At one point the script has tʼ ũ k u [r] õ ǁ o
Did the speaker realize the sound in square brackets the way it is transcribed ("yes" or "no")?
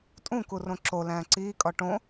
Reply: yes